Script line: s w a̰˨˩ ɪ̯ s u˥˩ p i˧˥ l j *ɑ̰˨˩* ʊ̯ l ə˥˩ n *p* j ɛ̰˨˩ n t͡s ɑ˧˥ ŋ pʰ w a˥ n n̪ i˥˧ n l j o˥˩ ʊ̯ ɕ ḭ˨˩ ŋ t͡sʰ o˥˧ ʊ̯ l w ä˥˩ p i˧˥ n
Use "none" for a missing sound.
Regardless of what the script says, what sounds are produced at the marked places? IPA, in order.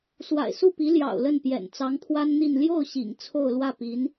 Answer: ɑ̰˨˩, p

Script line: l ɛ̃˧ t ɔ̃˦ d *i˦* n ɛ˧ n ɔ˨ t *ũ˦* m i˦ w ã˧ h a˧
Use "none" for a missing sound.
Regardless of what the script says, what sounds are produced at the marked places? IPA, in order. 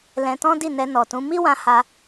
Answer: i˦˨, ũ˨˦

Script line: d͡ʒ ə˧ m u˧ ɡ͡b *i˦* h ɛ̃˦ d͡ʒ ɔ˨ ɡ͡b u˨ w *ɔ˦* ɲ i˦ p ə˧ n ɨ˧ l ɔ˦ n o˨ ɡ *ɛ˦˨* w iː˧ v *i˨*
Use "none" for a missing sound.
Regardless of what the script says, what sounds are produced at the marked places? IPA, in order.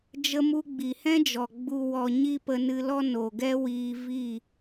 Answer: i˨, ɔ˨, ɛ˦, i˦˨

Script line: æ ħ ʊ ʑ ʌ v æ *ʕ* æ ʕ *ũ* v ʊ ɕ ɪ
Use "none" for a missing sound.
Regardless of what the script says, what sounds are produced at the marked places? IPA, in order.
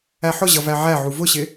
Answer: ʕ, u

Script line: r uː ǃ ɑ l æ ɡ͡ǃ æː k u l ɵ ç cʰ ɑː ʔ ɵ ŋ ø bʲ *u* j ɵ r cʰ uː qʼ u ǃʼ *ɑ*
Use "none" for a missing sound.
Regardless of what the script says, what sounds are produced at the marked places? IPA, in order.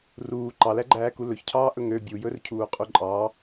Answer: u, ɑ

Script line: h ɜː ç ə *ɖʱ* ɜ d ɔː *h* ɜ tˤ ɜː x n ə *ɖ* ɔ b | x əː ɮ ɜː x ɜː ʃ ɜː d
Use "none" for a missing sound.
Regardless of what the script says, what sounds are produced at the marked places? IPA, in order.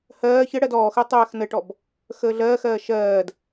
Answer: ɽ, x, ʈ

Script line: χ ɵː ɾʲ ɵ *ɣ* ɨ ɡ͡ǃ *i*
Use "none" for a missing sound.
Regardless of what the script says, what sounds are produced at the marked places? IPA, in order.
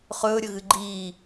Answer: ɣ, iː

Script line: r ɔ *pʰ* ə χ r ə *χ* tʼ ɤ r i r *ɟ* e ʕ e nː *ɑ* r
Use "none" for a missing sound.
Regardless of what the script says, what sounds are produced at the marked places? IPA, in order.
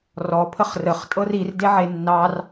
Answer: pʰ, χ, d, ɑ

